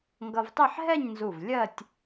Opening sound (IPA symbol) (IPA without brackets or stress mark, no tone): ŋ